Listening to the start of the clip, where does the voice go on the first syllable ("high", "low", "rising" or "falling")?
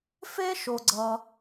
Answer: high